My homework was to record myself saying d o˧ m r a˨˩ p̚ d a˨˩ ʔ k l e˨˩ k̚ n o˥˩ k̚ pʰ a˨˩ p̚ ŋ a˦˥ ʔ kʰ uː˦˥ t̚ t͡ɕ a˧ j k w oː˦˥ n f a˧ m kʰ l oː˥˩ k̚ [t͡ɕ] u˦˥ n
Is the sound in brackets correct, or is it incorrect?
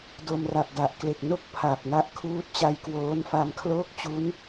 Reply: correct